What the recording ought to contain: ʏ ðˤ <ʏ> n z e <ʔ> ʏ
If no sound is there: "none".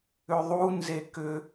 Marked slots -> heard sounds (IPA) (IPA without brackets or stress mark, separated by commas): u, k